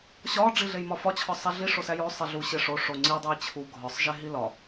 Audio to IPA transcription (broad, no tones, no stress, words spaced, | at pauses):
ɕɒ ɖ͡ʐiɮejmɒfɒ t͡ɕʰɒsˤæɮi ʂosæjo sˤeɮu ɕeʂo ʂoŋ͡ǀi dˤojt͡ɕʰu ɡʱɒsˤ ʒeɦilɒ